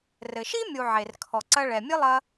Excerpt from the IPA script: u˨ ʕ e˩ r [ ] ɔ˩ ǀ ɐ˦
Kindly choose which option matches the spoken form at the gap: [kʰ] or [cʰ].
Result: kʰ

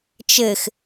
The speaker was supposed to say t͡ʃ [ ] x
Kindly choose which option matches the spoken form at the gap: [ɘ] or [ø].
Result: ɘ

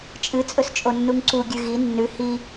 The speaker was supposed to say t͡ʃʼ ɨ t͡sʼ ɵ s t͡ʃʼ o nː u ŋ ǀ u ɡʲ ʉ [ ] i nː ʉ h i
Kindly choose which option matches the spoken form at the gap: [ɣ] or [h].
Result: ɣ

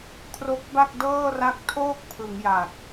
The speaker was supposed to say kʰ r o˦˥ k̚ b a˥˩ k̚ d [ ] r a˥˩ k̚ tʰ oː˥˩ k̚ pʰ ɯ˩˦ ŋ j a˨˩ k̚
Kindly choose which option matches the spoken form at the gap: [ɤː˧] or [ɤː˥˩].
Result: ɤː˥˩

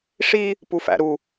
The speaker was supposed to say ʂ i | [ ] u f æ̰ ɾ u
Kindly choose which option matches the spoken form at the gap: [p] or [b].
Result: p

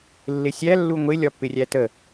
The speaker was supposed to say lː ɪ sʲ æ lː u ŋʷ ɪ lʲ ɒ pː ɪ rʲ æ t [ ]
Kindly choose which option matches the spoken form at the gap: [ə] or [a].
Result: ə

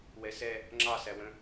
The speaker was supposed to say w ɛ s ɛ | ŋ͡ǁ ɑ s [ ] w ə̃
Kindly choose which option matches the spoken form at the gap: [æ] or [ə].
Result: æ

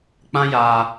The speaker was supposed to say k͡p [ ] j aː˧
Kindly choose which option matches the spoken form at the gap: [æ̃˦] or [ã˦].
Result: ã˦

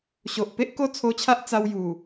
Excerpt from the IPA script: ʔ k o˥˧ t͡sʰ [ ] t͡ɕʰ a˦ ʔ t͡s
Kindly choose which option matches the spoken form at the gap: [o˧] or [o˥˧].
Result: o˧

